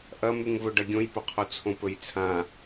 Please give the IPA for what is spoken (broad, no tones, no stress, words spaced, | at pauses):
ʔɐmʉŋvɵ ɖɐɡʲõjpɵqʰo t͡sʰõpɵjt͡sʰã